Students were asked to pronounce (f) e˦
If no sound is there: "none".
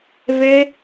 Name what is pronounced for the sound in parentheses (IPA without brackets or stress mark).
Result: v